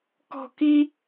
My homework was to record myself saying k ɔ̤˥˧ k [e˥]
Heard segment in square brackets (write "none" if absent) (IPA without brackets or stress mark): i˥